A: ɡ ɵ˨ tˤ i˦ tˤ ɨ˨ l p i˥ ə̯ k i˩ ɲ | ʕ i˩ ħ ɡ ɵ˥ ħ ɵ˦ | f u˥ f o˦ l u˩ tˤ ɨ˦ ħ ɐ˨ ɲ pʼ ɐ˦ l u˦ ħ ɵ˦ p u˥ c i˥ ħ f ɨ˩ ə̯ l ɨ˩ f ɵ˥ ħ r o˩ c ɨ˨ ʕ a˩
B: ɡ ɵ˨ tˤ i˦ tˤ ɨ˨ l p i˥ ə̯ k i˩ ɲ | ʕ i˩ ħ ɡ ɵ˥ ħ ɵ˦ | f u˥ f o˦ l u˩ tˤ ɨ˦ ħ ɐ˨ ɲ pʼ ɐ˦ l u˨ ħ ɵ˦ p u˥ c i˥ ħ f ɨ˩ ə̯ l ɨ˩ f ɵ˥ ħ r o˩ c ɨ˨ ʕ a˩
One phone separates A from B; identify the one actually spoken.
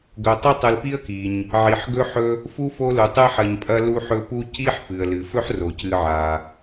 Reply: A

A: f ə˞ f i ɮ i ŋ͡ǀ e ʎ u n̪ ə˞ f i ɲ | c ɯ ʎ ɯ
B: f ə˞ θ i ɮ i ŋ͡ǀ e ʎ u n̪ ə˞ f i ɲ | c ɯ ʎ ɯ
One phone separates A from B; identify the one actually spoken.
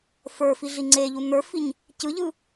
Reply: A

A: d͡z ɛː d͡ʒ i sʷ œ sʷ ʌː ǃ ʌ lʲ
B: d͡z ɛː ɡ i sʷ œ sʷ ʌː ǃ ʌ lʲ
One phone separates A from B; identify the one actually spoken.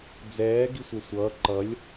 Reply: B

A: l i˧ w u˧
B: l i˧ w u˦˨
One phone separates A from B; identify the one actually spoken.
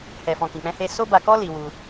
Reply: A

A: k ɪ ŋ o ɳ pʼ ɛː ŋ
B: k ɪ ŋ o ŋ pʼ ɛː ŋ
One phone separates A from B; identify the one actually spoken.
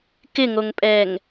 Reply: B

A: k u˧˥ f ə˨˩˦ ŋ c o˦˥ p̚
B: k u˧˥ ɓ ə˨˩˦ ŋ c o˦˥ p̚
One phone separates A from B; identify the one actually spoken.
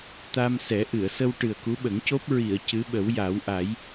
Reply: B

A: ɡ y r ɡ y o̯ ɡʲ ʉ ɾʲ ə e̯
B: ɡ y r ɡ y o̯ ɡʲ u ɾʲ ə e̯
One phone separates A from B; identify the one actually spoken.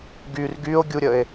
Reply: B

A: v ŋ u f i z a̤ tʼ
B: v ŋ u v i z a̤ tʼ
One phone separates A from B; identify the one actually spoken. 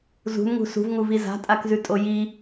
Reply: B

